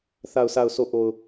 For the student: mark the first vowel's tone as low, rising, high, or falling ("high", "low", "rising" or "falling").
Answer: low